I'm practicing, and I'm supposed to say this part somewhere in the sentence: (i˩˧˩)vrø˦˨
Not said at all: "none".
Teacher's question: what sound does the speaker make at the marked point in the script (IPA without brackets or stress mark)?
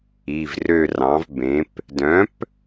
i˩˧˩